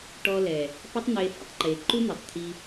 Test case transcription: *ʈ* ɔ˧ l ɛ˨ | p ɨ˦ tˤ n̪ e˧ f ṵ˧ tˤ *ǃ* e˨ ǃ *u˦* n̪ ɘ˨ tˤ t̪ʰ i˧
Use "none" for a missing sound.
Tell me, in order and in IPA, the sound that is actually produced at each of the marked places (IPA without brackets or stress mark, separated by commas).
ʈ, ǃ, u˦